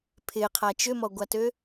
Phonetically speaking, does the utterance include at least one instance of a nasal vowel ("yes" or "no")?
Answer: no